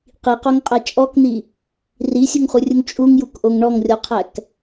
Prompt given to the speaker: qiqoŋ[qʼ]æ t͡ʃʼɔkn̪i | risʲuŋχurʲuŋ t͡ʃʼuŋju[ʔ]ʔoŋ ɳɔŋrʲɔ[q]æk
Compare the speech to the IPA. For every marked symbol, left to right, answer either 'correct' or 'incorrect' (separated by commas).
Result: correct, incorrect, incorrect